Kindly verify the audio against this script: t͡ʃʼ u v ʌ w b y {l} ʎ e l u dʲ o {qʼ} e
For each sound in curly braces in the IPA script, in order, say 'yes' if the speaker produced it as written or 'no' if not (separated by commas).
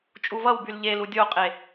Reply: yes, yes